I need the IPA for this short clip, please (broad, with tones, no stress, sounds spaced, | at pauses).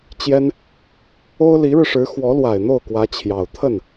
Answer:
t͡ɕ j ɛ˥ n | o˥ ʊ̯ l i˧˥ ɻ ɻ̩˧ ʂ ɻ̩˧˥ x w ɔ˧˥ l w a˨˩ ɪ̯ n̪ o˥˩ ʊ̯ k w ä˧˥ t͡ɕʰ j ɑ˨˩ ʊ̯ t̪ʰ ə˥˩ n